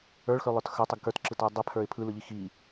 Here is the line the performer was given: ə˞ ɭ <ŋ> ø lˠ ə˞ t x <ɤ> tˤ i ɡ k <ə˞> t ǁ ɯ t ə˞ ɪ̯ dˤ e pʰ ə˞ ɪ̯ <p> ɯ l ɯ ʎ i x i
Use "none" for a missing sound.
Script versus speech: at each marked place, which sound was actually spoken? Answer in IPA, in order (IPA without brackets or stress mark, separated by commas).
x, ə˞, ə˞, pʰ